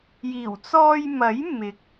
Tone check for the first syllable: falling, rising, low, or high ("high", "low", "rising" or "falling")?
low